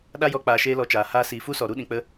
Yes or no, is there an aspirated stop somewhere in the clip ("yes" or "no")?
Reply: no